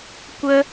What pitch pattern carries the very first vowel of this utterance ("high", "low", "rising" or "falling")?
high